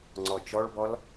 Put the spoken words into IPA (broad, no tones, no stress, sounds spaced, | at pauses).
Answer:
ŋ͡ǀ ɔ t͡ʃ ɔ ɭ b ɔ l